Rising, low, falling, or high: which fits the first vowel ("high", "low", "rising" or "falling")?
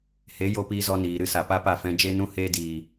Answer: rising